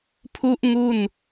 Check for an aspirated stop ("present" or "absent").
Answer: present